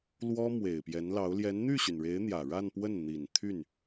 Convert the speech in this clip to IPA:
lwɔ˥mwe˨˩ɪ̯pjɛ˧˥nlɑ˧˥ʊ̯ ljɛ˧˥nn̪y˥˩ɕy˩nɻe˧˥ɪ̯ n̪jä˨˩ɻa˥˧npwə˥˩n n̪i˨˩nt̪ʰy˥˩n

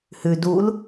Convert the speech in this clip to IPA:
hʉ dul

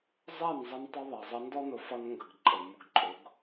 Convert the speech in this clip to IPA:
zˤɛ˦˨n zˤʌ˦ntˤʊ˦ðˤɛ˨zˤʌ˦ ndɔ˦nʊ˨ fʌ˦nŋɡə˨ɡǃʼə˨ mʊ˨ɡǃʼʊ˨˦ɡ

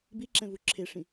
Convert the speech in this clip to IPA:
biǁɛ̃vu ǁʰeʂĩ

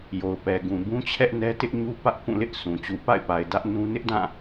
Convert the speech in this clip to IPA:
jo˨ʊ̯pɛ˨ɡũ˨ bũ˦t͡ɕʰɛ˦ʔnɛ˦ tɪ˦ʔɲu˦ pä˦ʔkũ˦˨lɪ˦ʔsʰũ˨ t͡ɕu˨pa̰˦˨ɪ̯pa˨ɪ̯ dä˦ʔnũ˦ nɪ˦ʔdã˦˨

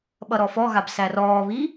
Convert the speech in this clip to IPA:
ɓʌɾɔfɔɣab særɔːβi

